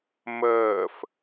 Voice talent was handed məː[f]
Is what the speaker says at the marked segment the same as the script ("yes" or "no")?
yes